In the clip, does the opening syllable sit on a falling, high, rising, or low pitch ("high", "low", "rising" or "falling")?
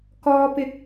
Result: low